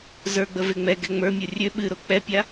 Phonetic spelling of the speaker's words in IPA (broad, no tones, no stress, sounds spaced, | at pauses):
z ə˞ ɡ͡b ə v e ŋ͡m ɛ ɡ ɛ ŋ͡m ə˞ mʲ o rʲ ø ɓ ɨ ɾ o k͡p ɛ pʲ a